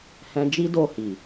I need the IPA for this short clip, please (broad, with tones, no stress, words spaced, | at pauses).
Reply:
hɛ̃˧d͡ʒi˦do˧ hi˨